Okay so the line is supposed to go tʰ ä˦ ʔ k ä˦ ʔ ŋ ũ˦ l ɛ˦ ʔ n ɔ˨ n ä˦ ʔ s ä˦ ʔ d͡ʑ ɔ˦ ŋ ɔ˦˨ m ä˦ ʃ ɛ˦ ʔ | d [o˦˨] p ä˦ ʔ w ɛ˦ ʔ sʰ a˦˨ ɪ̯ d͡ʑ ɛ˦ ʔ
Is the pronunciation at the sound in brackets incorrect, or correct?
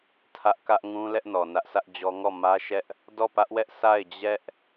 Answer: incorrect